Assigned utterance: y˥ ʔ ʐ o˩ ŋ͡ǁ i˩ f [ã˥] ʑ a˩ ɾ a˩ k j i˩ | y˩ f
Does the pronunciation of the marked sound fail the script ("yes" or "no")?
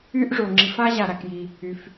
yes